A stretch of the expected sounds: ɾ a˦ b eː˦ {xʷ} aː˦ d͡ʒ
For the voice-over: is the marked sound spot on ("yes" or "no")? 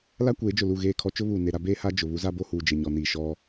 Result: no